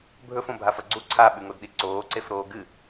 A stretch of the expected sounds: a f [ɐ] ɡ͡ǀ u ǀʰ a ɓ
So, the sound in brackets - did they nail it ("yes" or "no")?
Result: yes